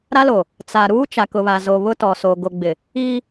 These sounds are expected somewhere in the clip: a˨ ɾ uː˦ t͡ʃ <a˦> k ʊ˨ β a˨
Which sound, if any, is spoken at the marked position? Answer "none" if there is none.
a˨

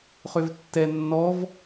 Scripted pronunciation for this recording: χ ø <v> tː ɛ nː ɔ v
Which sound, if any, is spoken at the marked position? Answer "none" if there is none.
v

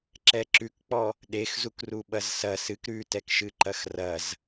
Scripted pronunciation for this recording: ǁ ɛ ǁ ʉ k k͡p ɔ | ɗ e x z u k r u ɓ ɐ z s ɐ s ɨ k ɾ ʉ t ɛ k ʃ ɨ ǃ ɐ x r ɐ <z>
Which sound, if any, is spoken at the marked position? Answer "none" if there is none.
z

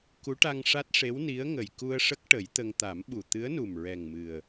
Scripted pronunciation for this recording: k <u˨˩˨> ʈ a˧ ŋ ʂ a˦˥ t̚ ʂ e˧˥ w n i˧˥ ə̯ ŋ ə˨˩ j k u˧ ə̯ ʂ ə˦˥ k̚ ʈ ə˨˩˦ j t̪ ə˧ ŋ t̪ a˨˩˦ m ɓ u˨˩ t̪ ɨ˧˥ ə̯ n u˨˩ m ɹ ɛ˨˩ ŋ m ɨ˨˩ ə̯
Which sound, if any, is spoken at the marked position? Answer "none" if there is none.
u˧˥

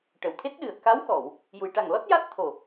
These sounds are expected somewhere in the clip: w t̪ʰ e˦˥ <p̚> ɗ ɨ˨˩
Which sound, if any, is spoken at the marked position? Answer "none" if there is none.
t̚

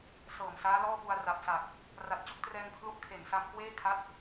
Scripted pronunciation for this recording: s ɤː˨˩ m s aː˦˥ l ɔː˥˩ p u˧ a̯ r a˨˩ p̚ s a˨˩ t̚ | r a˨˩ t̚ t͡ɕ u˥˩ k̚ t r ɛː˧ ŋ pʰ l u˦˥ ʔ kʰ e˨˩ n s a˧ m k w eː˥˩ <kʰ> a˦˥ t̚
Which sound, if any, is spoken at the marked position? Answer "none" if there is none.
kʰ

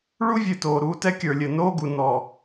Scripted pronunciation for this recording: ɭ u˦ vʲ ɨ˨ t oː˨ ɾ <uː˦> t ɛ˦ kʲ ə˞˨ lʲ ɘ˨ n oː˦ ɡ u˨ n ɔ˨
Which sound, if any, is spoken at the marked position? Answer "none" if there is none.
uː˦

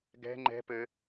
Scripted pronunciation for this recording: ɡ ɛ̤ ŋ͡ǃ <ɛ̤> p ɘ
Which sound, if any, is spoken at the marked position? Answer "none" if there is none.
ɛ̤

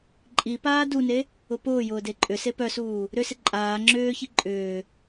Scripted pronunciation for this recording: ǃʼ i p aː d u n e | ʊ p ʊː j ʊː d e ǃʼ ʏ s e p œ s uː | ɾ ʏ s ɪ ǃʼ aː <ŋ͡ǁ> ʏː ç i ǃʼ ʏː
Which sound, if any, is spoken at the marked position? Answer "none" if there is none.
ŋ͡ǁ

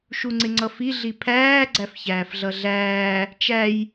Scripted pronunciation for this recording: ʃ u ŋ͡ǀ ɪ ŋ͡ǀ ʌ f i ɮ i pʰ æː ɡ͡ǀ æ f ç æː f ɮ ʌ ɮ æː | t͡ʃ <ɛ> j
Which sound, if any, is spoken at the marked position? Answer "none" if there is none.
æ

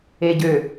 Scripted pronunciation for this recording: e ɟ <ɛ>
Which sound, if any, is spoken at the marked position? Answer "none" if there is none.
ø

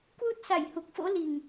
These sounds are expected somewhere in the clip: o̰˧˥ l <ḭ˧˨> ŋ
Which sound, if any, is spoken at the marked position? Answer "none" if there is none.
i˨˩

